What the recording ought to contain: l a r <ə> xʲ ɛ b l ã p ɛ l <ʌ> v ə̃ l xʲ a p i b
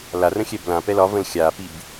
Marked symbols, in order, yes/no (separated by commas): no, no